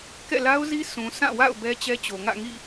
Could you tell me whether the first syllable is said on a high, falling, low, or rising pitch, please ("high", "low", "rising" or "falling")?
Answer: falling